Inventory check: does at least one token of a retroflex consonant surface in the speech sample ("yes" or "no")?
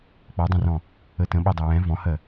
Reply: no